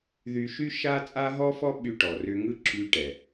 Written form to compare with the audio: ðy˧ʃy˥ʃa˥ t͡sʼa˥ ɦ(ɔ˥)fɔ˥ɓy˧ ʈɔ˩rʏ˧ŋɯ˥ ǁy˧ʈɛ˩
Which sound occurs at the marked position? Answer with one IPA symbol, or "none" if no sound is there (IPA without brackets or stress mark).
ɔ˥